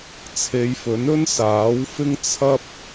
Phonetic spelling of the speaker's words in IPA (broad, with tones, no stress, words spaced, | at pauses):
t͡sʰe˨˧jfɵ˨˥nɵ˥n saː˨˥wfɪ˥ŋ t͡sʰɐ˥p̚